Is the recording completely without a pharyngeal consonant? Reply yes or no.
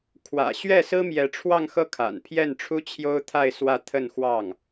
yes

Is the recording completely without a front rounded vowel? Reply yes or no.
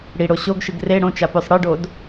yes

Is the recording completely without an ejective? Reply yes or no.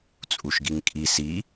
no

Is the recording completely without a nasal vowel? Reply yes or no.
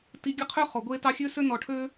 yes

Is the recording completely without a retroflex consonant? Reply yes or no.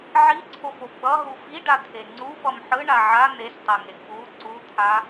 no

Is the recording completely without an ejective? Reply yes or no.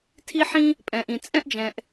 no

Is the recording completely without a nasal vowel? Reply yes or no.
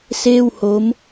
yes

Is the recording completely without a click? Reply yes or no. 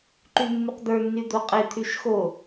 no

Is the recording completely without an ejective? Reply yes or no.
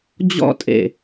no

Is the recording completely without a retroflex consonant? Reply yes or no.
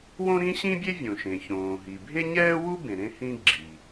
yes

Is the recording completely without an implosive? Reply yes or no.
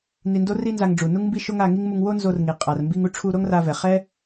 yes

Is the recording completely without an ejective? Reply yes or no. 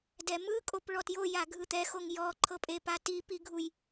no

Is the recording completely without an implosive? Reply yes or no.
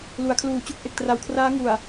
yes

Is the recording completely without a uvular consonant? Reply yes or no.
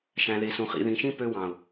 no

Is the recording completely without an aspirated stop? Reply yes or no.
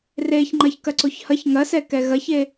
yes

